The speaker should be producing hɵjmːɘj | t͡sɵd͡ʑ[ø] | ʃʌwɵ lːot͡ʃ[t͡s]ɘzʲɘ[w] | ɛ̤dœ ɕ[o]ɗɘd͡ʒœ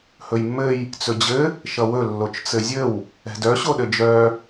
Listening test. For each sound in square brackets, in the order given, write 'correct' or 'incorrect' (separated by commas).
incorrect, correct, correct, correct